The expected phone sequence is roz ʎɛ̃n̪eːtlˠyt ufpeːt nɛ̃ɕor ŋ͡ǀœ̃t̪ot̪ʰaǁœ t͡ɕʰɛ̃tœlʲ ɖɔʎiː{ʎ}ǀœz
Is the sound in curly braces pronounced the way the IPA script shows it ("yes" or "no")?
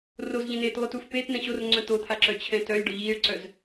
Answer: no